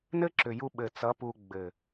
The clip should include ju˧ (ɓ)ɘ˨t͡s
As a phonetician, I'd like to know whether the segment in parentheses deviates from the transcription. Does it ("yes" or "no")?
no